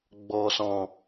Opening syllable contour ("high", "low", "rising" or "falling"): low